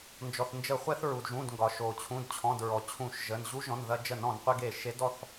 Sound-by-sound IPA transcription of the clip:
nd͡ʒɔ˩θnd͡ʒə˧˩˧χʷɛ˧θ ɹu˩dʒũ˩˧˩dŋɡɒ˩ ʃo˩t͡ɕʰũ˩˧˩dt͡ɕʰɔ̃˩˧˩d ɹɔ˩t͡ɕʰũ˧˩˧ʃʒə˩˧˩n ʑu˧˥ʒɔ̃˩˧˩nðɐ˧d͡ʒə˧˩˧n ɔ̃˧˩˧nqʷe˧ɡe˧˩ʃe˧˥d ɔ˩˧˩θ

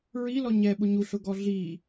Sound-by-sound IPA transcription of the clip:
ɹi lɔɲɛ ɓʊɲuɬʊɡɔ ɮi

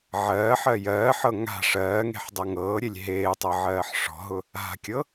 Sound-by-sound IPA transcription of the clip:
ʕɜːħɜ jɜːħɤ ŋa̤ ʂɜːŋe̤ħdˤɤ ŋɤːɾʲelʲ ɦeːtˤɤʕɜːħ ʂɔ̤ɦʊ | a̤kʲɤ

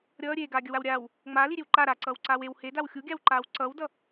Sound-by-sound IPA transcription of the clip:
ɾʲʌː ɾʲeːɡaːɡʲʌwaw ɾʲaːw | ŋ͡maːliɾʲew ǃa ɾaǀʌːwǀaːw ew hedaw xʲuɡʲawǃaːw ǀʌwdʌ

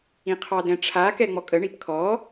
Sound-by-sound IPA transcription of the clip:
ĩqʰɑdɛ̃ʈ͡ʂʰa kɛŋ͡mɔkʼə ɳipkʰɔ

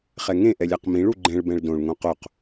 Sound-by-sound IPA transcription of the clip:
χɛŋẽ ʔɛlʲaqmĩɭ uɡ͡ǃɛ̃ɭ bɛ̃ɭdõɭ ŋõqoq

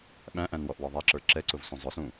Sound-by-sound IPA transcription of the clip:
ɓæ̃ʔæ̃nwɔʔwɔ ðˤæǁə˞ ǁɛǀʊvsũ zˤʊsũ

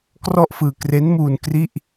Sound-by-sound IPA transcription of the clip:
krɔ˥˩ʔfɯː˧ kre˦˥nmuː˧n kri˥˩ʔ

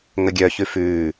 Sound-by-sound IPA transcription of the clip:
ŋəɡʲœçʉ fʉː

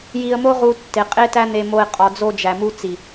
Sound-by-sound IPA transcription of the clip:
ji˧ə̯mo˦ʁu˧ tːe˨ qʼe˦tæ˦n̪e˧mo˧ɪ̯ qʼɒ˨d͡zo˧d͡ʒæ˨mu˧ t͡si˨

